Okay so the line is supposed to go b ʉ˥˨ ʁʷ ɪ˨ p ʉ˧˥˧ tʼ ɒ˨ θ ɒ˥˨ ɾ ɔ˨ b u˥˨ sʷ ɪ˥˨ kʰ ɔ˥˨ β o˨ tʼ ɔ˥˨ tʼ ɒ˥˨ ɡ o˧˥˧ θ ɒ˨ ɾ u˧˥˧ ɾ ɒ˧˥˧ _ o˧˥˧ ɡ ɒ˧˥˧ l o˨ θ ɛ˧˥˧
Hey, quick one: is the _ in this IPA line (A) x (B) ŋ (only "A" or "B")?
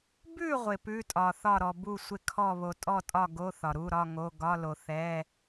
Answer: B